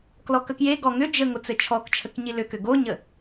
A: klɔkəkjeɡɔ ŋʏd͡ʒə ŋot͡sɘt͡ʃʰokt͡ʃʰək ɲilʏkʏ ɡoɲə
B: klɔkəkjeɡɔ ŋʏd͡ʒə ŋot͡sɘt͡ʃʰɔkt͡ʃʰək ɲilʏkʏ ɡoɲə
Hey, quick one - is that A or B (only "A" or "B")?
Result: B